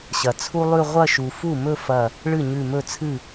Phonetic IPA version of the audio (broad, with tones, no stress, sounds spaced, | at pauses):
ɕ ɐ˩ t͡sʰ u˥ lˠ ʉ˥˧ ʁʷ ɐ˥˧ ʃ u˩ f u˥˩ m ɵ˥˧ f ɐ˧˩ | ɭ ɨ˥˩ ɲ ʉ˧˩ m ɵ˥˩ t͡sʰ ɨ˥˩